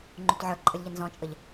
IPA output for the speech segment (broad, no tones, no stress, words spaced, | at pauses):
ŋ͡ǃutʕə˞ǃʼəlʲ ʎənzɔ̃t͡ʃʼəʎ